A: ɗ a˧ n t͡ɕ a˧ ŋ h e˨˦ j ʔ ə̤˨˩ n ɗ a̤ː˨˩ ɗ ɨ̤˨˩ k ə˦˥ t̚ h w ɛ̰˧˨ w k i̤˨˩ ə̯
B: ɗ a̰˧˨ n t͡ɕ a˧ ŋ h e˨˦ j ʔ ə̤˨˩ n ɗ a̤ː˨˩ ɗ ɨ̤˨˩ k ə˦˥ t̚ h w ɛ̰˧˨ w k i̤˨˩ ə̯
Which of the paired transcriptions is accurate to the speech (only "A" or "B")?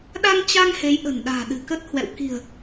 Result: A